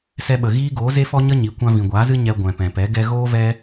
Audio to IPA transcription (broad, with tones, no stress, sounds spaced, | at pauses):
s ɛ˧ ɓ ə˨ ɣ iː˦ ɡ oː˨˦ z e˦ f ɔ˦ ɲ ə˦ ɲ i˨˦ kʷ ã˧ v ĩ˨ ɡʷ aː˨˦ z ɨ˦ ɲ ɛ˧ ɡʷ ɛ̃˨ p ɛ̃˨ p ɛ˨˦ ɡ ɛ˧ ɣ oː˦ v ɛ˦